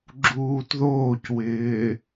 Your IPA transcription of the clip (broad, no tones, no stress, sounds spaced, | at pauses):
ɡ͡ǁ uː t ð oː c w ɪː